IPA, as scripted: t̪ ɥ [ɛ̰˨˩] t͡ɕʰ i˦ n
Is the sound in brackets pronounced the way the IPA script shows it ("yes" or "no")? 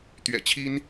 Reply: yes